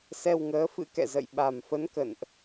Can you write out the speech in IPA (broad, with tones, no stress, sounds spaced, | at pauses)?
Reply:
s ɛ˧ w ŋ əː˨˦ f ɨ̰˧˥ k ɛ̰˧˨ z ə̰˧˨ j ɓ a˨˩ m f ə˨˦ n k ə̰˧˨ n ʔ